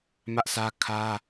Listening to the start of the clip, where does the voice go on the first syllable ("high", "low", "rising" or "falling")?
high